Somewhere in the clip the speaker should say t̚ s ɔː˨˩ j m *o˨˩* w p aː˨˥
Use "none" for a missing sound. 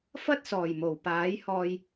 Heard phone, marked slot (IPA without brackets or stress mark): o˨˩